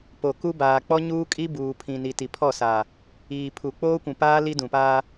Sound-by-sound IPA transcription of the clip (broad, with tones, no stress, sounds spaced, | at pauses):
p o˨ k u˦ b aː˨ k͡p ɔ˦ ɲ uː˦ kʼ i˦ b uː˨ pʰ ĩ˨ n i˨ t i˨ pʰ ɔ˦˨ s aː˨ | iː˨ pʰ u˨ k͡p oː˦ kʷ ũ˨ p aː˦ l i˦ d ũ˨ p aː˦